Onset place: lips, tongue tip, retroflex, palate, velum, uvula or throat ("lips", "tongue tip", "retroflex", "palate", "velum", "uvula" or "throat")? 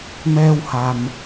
lips